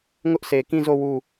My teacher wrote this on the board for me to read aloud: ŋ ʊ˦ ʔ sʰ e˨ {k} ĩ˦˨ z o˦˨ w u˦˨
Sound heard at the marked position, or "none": k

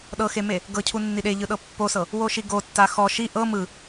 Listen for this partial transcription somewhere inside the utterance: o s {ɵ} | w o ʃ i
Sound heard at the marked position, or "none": ɤ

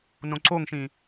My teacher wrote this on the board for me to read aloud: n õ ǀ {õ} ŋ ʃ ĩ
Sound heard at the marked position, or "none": o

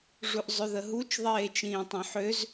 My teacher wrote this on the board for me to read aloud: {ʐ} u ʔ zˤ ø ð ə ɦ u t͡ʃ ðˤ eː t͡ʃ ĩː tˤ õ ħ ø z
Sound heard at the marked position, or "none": ʐ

